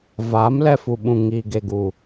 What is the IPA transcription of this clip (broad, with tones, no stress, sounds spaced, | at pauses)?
v aː˨˦ m l ɛ˧ f u˨ ɓ ũ˨ ŋ iː˨ ɡ e˨ ɡ u˨